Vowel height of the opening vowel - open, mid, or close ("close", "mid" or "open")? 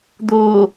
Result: mid